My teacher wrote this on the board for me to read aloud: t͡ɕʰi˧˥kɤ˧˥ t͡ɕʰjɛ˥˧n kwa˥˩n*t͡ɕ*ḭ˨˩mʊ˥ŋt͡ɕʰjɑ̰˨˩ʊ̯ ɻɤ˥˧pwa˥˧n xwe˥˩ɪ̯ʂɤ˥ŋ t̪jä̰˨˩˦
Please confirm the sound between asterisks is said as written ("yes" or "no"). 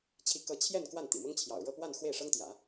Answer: no